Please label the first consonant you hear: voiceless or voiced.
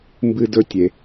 voiced